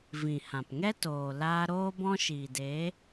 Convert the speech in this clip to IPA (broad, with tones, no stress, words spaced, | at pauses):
vĩ˨hã˨pŋɛ˦ toː˨ laː˦ ɾoː˦bɔ̃˦ ʃiː˨deː˨˦